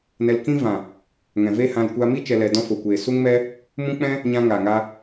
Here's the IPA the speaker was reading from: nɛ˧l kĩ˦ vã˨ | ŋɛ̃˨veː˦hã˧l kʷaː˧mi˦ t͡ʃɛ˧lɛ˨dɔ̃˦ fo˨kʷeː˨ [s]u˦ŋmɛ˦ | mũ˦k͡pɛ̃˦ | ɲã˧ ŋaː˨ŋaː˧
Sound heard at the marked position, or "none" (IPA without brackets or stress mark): s